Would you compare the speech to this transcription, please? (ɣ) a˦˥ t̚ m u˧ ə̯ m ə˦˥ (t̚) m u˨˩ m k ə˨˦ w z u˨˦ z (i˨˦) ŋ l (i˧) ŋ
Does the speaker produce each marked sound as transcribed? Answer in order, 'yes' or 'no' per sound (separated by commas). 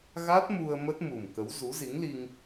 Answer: yes, yes, yes, yes